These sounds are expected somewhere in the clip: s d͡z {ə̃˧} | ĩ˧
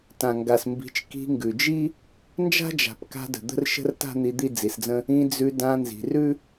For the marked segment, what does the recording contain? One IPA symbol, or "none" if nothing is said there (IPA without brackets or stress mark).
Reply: ə̃˦